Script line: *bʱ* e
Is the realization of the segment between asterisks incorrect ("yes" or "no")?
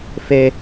yes